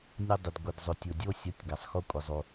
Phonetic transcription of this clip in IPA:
nʲ ɵ˧ dˤ ɪ˩ d ɡʷ ɪ˩ d zˤ ɵ˩ tʲ ʊ˩ dʲ o˧ sʲ ʌ˩˥ tʲ ɡ a˩ sˤ x o˧ kʷʼ ɪ˩ zˤ o˩

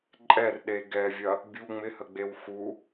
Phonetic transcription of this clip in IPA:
ǃʼ ɛ r ɗ e ɡ ɛ vʲ ɐ | bʲ u ŋ͡m ɪ h ə ɡ͡b e w x u

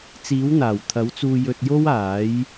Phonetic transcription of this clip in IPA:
t͡s iː˨˥ w n̪ aː˨˩ w t̪ʰ ɐ˨˥ w t͡s uː˧ j ɵ˧ t̚ j o˥ w aː˨˥ j

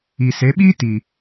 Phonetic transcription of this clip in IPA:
i˨ s e˨˦ ɓ iː˦ t i˨

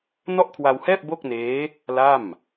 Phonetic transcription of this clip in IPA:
n ɔ˥˩ ʔ kʰ w a˧ w h ɛː˥˩ p̚ b o˥˩ k̚ n eː˦˥ | l a˥˩ m

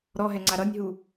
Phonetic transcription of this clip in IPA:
ɾ ɔ ɦ ɛ ŋ͡ǀ a ɾ ʌ nʲ ɦ u

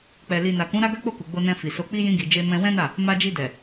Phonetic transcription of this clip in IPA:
k͡p ɛ˨ l i˨ n a˨ k ũ˨˦ ɾ a˦ ɡ a˦ k͡p o˦˨ k u˨ ɡ͡b o˧ n ɛ̃˧ f i˨ s o˧ k͡p i˦ j ĩ˧ ɡ i˨ d͡ʒ e˧ m ɛ̃˧ w ɛ̃˦ n a˦˨ | m a˧ d͡ʒ i˧ d ɛ˨

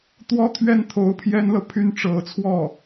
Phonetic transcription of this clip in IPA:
t̪ w ɔ˥ t̪ʰ ɥ ɛ˥˩ n t̪ʰ o˧˥ ʊ̯ pʰ j ɛ˥ n l ɤ˨ pʰ y˥ n ʈ͡ʂ ɤ˧˥ t͡sʰ w ɔ˥˩

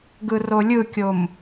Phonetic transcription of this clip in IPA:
ɡ ɯ r o lʲ ɯ kʲ o m

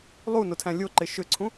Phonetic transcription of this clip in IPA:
lˠ u n o tʰ æ̃ lʲ o ǃ e ʃ ʏ ǀʰ ũ

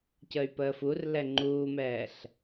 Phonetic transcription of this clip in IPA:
c ə y̯ p əː f u r l ɛ ŋ͡ǃ uː m ɛː ɬ

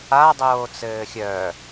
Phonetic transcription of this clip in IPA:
a dˤ oː t͡s ɘː xʲ œ

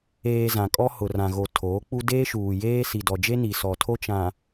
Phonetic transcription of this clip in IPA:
eː˨ z ã˨ kʼ ɔ˦ h ʊ˨ r ã˨ ɣ o˨ tʰ oː˨˦ k͡p u˦ d eː˦ ʃ uː˨ j eː˦ s i˨ d ɔ˨ d͡ʒ e˦ n i˨ s ɔ˨ tʰ o˦ t͡ʃ ã˨

